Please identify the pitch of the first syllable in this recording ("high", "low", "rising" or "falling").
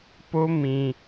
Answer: high